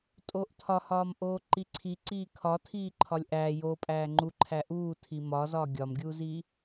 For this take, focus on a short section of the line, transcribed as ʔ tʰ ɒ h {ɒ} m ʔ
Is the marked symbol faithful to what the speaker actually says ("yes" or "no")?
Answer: no